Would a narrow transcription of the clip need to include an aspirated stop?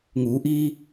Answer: no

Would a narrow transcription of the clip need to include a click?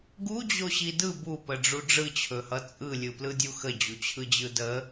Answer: no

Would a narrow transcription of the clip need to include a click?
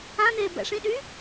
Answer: no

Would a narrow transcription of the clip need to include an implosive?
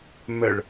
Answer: no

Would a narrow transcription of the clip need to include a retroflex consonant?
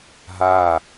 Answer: no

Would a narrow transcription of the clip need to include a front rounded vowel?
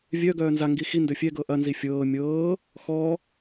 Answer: yes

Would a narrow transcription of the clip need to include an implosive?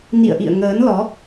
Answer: no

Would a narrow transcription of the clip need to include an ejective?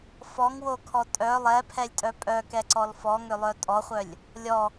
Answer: yes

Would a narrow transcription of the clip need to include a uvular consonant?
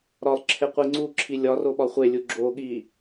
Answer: yes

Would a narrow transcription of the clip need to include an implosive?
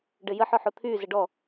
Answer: no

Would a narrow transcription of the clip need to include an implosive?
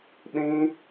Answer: yes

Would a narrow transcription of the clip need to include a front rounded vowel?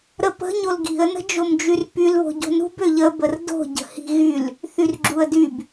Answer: yes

